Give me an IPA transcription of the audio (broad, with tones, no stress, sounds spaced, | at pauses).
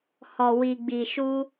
h ɔ˨ w i˨ ɡ͡b i˨ ʃ u˧